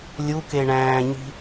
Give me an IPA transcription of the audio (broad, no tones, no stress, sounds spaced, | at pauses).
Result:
lʲ u k e ɳ æ̃ː ɲ i̤